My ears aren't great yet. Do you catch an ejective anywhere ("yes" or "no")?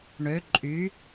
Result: yes